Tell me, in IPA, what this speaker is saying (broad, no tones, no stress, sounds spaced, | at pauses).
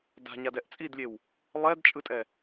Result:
d a̤ ɲ a d ɛ ʔ t͡sʼ i d lʲ e w | lˠ ɛ d t͡ʃʼ ɯ tʼ ɛ